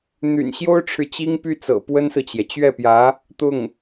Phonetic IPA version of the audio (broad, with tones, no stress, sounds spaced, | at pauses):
n̪ y̰˨˩ n ɕ j o˥ ʊ̯ ʈ͡ʂʰ ɻ̩˨ t͡ɕ i˥ ŋ p y˥ t͡s ɤ̰˨˩ p w ə˥ n s ɹ̩˨ t͡ɕ j ɛ˩ t͡ɕ ɥ ɛ˥˩ p j ä˧˥ | t̪ ʊ˥˩ ŋ